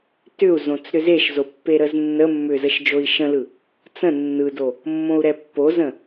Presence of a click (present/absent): absent